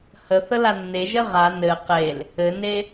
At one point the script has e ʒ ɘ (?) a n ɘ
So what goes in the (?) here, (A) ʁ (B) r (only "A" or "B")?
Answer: A